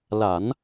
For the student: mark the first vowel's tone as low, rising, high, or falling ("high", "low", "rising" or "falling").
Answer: low